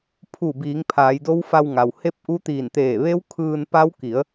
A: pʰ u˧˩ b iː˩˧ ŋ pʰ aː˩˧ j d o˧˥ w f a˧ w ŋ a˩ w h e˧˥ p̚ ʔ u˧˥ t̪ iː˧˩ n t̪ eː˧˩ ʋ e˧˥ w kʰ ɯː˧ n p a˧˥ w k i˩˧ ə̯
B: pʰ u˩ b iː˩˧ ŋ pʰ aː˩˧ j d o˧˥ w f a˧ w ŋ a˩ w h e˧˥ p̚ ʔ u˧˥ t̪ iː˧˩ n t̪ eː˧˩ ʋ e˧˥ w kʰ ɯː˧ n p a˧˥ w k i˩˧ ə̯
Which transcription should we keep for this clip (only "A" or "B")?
A